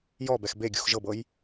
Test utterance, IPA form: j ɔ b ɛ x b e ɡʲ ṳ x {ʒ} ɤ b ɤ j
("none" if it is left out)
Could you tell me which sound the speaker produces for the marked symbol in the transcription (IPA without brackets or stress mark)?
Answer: ʒ